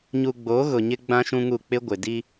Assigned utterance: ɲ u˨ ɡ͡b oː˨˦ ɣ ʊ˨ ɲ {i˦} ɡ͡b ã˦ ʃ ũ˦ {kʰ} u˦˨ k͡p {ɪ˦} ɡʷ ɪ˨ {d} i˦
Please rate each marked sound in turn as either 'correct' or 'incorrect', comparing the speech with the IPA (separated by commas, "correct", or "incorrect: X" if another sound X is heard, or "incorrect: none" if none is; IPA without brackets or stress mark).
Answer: incorrect: ɪ˦, incorrect: ŋ, correct, correct